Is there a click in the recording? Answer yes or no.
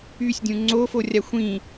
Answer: yes